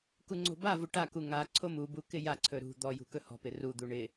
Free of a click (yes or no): no